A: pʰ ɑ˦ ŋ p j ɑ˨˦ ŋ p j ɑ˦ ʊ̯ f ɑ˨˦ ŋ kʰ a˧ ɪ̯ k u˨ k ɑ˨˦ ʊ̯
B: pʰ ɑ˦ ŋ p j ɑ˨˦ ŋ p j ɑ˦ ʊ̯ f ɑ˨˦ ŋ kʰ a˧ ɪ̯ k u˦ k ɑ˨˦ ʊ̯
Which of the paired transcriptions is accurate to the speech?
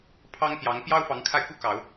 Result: B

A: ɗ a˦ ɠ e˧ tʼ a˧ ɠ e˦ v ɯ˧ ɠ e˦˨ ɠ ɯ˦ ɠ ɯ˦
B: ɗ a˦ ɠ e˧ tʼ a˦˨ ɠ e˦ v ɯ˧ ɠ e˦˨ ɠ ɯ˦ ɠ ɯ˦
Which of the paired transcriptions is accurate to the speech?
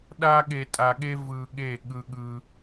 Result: A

